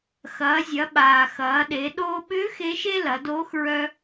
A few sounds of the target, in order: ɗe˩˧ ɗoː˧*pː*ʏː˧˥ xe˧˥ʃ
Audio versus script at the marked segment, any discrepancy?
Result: yes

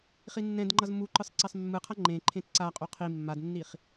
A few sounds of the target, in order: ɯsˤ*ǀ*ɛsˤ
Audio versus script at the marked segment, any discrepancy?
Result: no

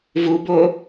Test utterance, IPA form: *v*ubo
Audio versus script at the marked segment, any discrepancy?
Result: no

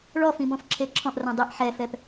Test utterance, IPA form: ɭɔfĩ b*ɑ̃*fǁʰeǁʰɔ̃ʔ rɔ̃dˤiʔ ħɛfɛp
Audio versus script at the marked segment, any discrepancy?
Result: yes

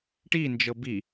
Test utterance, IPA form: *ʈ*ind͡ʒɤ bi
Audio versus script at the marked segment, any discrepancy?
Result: no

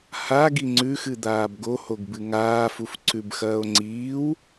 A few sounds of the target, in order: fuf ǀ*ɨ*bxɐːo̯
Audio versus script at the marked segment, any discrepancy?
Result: yes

